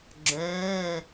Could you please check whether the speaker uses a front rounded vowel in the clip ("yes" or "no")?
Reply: yes